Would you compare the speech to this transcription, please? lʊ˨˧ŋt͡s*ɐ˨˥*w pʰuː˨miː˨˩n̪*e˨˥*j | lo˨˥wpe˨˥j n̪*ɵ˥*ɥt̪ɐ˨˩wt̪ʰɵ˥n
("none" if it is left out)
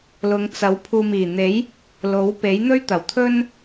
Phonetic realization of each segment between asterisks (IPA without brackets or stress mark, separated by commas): ɐ˨˥, e˨˥, ɵ˥